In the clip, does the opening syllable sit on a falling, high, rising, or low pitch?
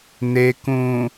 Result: low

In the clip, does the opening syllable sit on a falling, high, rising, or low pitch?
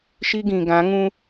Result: high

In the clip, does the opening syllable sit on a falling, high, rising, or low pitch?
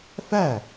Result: falling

